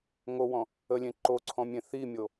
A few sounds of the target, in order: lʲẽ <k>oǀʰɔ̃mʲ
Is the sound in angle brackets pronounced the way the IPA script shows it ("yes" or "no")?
no